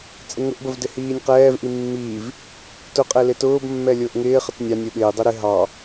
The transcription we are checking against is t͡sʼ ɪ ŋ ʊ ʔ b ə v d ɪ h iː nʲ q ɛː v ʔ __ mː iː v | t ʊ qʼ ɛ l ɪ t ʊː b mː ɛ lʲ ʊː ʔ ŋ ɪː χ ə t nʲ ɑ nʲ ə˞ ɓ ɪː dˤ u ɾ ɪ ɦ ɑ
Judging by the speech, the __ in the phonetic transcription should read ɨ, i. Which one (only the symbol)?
i